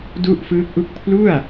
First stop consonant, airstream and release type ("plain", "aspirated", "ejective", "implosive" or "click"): plain